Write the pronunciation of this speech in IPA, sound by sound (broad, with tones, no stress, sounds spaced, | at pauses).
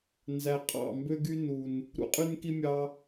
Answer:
n z æ˨ qʼ ɑ̰˦˨ m b ø˦ ɡ y˦ n u˨ n | ɾ ṵ˧ qʼ y˦ n k i˦ mʲ ɑ˧